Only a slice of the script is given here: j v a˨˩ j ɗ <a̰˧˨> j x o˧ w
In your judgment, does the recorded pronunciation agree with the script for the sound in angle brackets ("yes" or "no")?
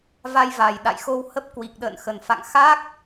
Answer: yes